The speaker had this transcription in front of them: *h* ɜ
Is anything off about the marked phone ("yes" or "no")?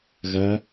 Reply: yes